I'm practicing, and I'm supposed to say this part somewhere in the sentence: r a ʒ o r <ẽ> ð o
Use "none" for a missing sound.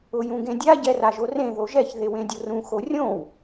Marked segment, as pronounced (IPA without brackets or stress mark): ẽ